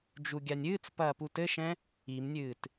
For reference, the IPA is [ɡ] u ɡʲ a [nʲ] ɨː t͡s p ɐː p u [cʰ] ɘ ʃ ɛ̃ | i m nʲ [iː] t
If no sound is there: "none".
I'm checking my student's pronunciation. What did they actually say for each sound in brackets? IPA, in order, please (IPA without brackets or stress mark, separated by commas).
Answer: d͡ʒ, nʲ, t, ɨː